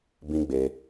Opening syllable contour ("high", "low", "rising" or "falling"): high